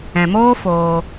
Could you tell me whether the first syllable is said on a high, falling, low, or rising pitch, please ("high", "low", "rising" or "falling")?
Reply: low